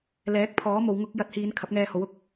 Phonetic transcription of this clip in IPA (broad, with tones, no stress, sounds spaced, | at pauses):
l ɛː˨˥ k̚ pʰ ɔː˨˥ m o˨˧ w ŋ ʊ˥ k̚ j ɐ˨˥ t̚ h iː˨˧ n kʰ ɐ˨˥ p̚ ŋ ɛː˧ h o˨˥ w ʊ˨˥ k̚